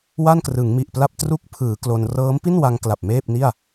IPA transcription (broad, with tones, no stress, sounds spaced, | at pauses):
w a˥˩ n k r ɯ˩˦ ŋ m i˨˩ ʔ p l a˥˩ p̚ t r u˦˥ k̚ pʰ ɯː˩˦ k l o˧ n r ɤː˦˥ m p i˥˩ n w a˧ ŋ k l a˨˩ p̚ m eː˥˩ p̚ n i˥˩ a̯